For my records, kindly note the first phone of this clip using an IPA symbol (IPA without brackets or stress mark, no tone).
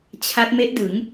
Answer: t͡ɕʰ